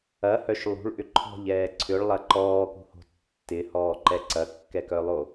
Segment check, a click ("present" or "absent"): present